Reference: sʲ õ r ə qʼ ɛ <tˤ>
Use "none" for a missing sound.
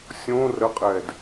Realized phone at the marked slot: d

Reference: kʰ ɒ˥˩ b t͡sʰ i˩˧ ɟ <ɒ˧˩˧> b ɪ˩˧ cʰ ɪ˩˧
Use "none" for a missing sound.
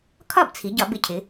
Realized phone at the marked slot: ɒ˧˩˧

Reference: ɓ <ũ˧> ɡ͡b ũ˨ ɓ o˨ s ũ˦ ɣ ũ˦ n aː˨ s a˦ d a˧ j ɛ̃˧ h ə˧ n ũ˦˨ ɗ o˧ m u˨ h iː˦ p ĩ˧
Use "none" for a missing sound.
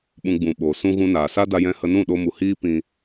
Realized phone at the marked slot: ũ˧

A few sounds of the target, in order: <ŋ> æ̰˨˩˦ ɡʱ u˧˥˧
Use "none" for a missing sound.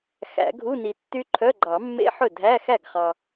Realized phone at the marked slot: x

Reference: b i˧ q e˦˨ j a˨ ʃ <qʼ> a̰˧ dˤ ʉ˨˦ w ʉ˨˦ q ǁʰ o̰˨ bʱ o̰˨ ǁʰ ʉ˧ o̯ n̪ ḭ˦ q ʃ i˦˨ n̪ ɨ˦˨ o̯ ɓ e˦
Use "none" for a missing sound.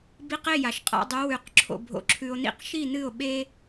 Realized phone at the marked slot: qʼ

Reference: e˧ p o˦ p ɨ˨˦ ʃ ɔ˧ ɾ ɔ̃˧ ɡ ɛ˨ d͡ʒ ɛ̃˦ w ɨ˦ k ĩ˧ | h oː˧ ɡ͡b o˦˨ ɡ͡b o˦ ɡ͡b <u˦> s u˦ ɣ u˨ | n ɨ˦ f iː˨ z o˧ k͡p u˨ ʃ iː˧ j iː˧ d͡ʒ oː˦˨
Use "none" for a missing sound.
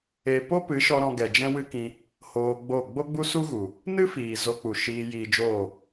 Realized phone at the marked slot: u˦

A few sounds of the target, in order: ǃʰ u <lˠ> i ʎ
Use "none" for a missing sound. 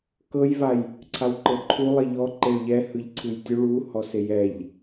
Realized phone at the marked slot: lˠ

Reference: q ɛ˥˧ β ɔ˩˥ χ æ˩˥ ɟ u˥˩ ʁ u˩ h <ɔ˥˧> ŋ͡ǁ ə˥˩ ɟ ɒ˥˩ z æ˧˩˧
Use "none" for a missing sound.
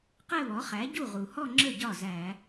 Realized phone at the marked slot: ɔ˥˧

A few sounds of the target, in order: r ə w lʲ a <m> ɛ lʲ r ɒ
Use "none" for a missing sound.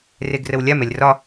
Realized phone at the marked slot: m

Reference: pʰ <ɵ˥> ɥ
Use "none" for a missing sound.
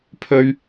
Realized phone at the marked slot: ɵ˥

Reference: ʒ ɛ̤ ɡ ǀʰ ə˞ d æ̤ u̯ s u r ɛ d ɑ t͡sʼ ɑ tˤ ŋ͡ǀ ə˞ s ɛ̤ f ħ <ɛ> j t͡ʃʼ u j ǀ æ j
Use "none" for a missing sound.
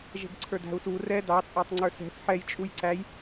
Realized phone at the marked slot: ɛ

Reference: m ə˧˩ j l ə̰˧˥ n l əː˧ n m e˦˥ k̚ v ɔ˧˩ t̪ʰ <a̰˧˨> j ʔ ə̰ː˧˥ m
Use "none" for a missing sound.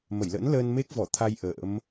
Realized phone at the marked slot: a˧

